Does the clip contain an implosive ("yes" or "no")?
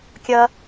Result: no